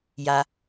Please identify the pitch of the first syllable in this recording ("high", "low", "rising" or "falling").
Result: low